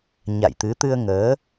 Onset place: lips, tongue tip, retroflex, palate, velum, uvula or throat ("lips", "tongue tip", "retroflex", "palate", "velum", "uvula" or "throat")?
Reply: palate